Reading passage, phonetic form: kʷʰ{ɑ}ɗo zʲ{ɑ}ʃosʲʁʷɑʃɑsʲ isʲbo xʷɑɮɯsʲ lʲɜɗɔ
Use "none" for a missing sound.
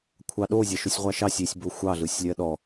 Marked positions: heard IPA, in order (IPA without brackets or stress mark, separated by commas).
ɑ, ɑ